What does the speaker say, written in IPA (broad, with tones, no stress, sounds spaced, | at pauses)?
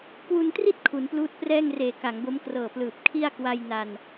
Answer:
k w u˧ n t r i˥˩ t̚ kʰ u˩˦ n p l uː˦˥ t̚ p r ɛː˥˩ ŋ r eː˨˩ k a˩˦ ŋ b o˦˥ m k r ɤː˨˩ p l ɯː˨˩ p̚ kʰ i˥˩ a̯ k w a˧ j n a˧ n